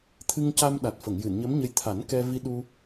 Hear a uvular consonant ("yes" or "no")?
no